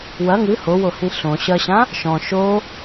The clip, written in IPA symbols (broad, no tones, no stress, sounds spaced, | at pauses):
w ɐ ŋ ɨ h o w o h ĩ ɬ õ ɕ ɐ ɕ ã | ʃ ɔ̃ ʃ o